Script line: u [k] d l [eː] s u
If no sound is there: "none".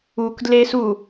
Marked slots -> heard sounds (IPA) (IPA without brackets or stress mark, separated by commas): k, eː